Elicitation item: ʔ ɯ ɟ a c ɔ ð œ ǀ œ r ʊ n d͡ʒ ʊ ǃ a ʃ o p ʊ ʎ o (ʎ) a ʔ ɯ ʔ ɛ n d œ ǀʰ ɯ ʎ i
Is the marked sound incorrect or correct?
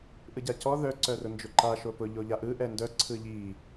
correct